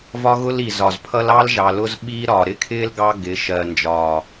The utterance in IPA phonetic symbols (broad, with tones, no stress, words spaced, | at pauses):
vɒ˦ɣʊ˦li˨ zɒ˨zpʰʌ˦lɑ˦l ʒɑ˨lʊ˦z ɓiː˦ɾɒː˨ ɾɪ˦kʰɪː˦l ɡɑ˦ ɡɪ˨˦ ʃɜ˨nd͡ʒɒː˨